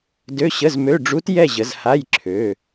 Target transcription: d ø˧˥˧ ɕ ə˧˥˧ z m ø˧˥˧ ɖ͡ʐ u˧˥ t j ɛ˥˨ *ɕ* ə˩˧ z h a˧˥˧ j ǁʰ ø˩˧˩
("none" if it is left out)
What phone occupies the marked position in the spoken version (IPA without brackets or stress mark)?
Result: ʑ